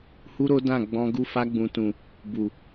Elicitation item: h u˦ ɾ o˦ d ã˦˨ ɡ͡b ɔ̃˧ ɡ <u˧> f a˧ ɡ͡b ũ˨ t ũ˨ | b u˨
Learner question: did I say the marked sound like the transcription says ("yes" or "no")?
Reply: yes